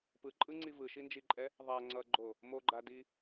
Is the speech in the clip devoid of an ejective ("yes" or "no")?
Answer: no